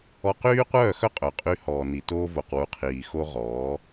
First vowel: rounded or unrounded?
rounded